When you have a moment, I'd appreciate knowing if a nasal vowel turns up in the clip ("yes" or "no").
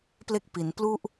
no